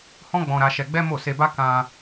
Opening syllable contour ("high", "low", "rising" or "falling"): high